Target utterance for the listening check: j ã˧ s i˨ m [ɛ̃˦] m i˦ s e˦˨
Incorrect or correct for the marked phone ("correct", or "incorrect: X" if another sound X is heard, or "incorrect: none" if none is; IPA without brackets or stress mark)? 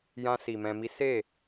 incorrect: ɛ̃˧